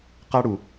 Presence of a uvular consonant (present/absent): present